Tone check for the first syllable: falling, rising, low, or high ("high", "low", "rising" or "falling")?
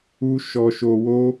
high